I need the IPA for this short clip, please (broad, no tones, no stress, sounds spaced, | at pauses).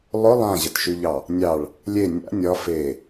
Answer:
lˠ ʊ lˠ ã ʑ ə t ʃ y ʎ ɑ | nʲ ɑ ɭ | lʲ e nʲ a̰ nʲ ɒ f e